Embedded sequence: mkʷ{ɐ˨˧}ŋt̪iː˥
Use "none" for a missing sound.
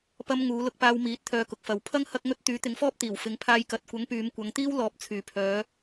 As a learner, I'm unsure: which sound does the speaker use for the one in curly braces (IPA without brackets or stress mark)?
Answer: ɐ˨˧